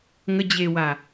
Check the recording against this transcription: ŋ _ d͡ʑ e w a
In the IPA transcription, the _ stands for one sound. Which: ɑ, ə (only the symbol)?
ə